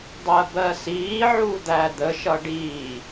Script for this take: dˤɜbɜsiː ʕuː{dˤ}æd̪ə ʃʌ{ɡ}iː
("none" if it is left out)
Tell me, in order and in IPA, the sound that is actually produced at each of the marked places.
d̪, ɖ

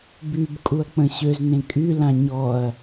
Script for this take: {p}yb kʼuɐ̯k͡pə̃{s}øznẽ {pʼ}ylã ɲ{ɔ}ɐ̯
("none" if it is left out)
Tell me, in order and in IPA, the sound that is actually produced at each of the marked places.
b, ɕ, kʼ, ɔ

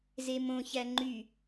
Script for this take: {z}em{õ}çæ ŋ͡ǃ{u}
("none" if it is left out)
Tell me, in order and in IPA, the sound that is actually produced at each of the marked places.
z, õ, y

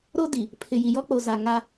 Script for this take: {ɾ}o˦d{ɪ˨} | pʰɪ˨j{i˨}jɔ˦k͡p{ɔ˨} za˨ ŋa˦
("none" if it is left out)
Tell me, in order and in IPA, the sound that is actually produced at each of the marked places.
ɾ, i˨, i˨, o˨

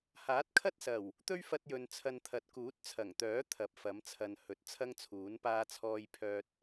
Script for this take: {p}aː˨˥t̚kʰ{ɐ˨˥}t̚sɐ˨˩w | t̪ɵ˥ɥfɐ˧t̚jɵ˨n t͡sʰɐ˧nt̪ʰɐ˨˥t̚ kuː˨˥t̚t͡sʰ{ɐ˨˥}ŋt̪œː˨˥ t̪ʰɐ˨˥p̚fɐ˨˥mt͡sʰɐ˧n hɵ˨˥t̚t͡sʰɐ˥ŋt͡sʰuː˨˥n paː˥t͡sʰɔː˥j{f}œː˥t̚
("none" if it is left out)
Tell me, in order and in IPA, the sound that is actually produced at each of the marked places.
h, ɐ˥, ɐ˨˩, pʰ

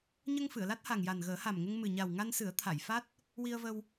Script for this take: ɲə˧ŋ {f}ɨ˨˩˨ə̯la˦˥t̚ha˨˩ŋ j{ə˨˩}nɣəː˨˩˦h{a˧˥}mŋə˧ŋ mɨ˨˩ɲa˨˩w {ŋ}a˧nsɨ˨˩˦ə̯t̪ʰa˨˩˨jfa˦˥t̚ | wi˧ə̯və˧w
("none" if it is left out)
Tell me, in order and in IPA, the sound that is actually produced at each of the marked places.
f, a˨˩, a˨˩, ŋ

